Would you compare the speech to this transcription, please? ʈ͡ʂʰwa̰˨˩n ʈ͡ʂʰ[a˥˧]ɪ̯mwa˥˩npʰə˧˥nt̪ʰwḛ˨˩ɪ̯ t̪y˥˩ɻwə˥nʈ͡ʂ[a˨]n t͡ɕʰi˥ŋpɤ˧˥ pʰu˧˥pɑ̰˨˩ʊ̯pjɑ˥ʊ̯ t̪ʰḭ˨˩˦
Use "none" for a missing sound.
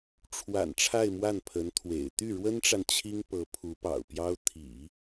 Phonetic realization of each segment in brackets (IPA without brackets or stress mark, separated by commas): a˥˧, a˨